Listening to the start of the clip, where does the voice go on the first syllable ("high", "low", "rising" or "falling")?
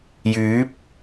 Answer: rising